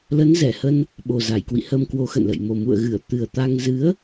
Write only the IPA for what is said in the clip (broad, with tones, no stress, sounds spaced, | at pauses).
l ə˨˦ n z ɛ˧˩ h ə˧ n | ɓ o˨˩ z a˧˩ j k w ḭ˧˨ h ə˧ m k w o˨˦ x ə̰˧˨ n l ə̰˧˨ j m o˨˩ m ṵ˧˨ ə̯ ɣ ɨ˧˩ ə̯ t̪ ɨ˨˩ ə̯ t̪ a˧ ŋ z ɨ˨˦ ə̯